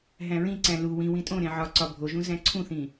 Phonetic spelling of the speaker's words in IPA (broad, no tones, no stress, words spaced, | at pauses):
ɦæ̃ɹĩǀæ̃ lu wĩwĩ tʼõɾẽ ʕɒǀɒ bʱoʒũ zæ̃ǀʰũθĩ